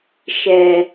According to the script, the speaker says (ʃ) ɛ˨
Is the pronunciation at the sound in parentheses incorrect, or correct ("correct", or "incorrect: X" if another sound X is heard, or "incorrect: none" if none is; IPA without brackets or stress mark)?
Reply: correct